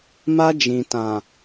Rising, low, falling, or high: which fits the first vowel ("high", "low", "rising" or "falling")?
high